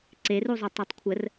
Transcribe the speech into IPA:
ǀ e r u zˤ u tˤ ʉ tˤ kʷʰ ə r

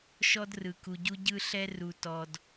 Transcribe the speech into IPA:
ʃ ɔ˦ d r ɯ˨ k u˨ ɟ u˦ ɟ ɯ˦ ɬ ɛ˦ r u˨ t ɔ˨ d

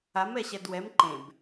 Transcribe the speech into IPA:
a m ɛ ɕ ɛ d w ɛ m ǃ ẽ b

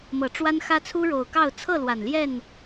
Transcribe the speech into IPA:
m ɤ˨˩ ʈ͡ʂ w a˦ n x ä˦ t͡sʰ u˦ ɻ o˨˩ ʊ̯ k ɑ˥˨ ʊ̯ t͡sʰ ɤ˥˨ l w a˨˩ n l j ɛ˥˨ n

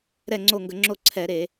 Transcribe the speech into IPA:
ɾ ɛ˦˨ ŋ͡ǀ o˦˨ ŋ ɡ ə˧˩˧ ŋ͡ǁ o˦˨ ǀʰ ɛ˧˩˧ ɾ e˧˩˧

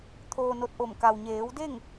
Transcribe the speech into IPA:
t̪ʰ oː˧ n o˧ t̚ ʔ o˧˩ m k a˩ w ɲ eː˩˧ w d e˥˨ ŋ

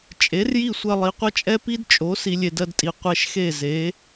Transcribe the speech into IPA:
t͡ʃʼ e˩˥ r j i˥˩ sʷ ɐ˧ lˠ i˩ qʷ ɐ˥ t͡ʃʼ ɛ˥ p i˥ d t͡ʃʼ o˩˥ s i˧ lʲ e˧ d ɜ˧ d tʼ i˩ qʷ ɛ˧ ʃ x e˥˩ z e˩˥

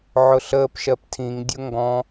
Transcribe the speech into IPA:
ʕ ʊ ɬ əː p ʃ ɜ p tʰ ĩ ŋ dʲ ʊ ŋ ɡ ɔ̃

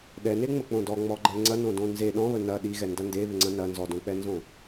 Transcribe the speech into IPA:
ɗ ɛ n e ŋ͡m ə k͡p õ d ɔ ŋ͡m ɔ ɡ͡ǃ ɛ ŋ͡ǀ ɐ n õ d õ n z e ɗ ɔ̃ β ə n ɐ ɗ i ɣ ɛ n d ɐ n d e β ɪ ŋ͡ǀ ɐ̃ n ɐ n z ɔ d õ k͡p ɛ n z õ

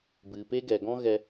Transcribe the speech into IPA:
b ɨ˨ p e˦ ɡ ɛ˨ ɡ ɔ̃˦ ɣ ɛ˧

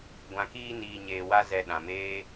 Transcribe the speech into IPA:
ɡʷ ã˨ k iː˧ n iː˨ ɲ eː˨ w a˧ z ɛ˨ ɗ ã˨ m eː˦

